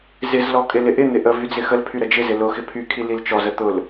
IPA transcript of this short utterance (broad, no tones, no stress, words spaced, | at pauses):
zɪzlɔ kʼɪlɪʔɪn̪ɪ ʔə vyd͡zɪxəlpʰy ɾəd͡ʒɪzɪ lʊxɪ pʰykʰi lilt͡ʃɔzə t̪ʊl